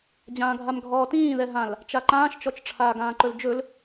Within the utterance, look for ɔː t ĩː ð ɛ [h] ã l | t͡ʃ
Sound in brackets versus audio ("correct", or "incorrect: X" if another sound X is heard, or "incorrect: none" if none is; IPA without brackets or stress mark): incorrect: ɦ